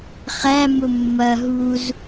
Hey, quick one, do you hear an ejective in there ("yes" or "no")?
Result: no